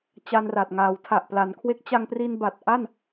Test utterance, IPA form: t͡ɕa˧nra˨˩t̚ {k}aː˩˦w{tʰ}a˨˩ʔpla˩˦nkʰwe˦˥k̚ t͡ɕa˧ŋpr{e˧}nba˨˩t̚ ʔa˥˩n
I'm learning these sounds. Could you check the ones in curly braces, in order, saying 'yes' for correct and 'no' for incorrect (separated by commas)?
no, yes, no